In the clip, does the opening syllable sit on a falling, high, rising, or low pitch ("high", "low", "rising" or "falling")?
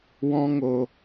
high